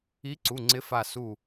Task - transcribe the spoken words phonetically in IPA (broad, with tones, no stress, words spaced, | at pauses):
i˨˥ǀu˩˧˩ ŋ͡ǀɪ˨˥fa˧˩ su˧˩